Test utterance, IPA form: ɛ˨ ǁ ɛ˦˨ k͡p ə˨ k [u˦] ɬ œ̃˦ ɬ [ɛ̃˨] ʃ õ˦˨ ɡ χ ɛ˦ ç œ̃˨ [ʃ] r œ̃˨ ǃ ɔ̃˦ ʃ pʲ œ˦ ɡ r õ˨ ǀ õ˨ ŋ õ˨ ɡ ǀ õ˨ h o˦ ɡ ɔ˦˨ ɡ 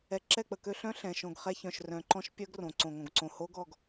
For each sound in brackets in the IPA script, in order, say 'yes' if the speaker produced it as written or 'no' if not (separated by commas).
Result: no, yes, yes